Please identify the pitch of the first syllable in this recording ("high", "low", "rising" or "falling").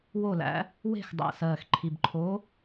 falling